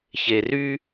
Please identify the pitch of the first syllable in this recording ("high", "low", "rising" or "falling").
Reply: low